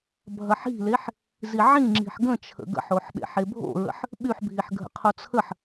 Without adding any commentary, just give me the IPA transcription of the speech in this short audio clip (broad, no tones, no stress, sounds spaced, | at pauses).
bʱ ɐ ħ i̤ l e ħ | z i ʕ ĩ ŋ͡ǁ i̤ ħ ɡ ə̃ t͡ʃʰ ə̰ ɡ ə̰ ħ o ħ ɓ ḛ ħ e bʱ o̰ ɹ ə̰ ħ | ɓ y ħ bʱ i ħ ɡʱ ə̰ qʰ o t͡sʰ ə ħ